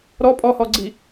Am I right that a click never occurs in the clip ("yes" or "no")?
no